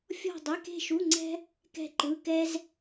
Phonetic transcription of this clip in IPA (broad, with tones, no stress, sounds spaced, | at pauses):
fʲ ɔ̤˥˧ dˤ e˧˥˧ k e̤˥˧ ʃ u˧˥˧ ŋ͡ǀ ɛ̤˥ | k ɛ̤˥˧ ǃ ɯ˧˥˧ k ɛ˥ z